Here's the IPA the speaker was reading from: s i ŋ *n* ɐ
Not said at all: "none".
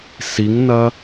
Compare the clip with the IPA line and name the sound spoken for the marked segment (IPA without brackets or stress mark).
n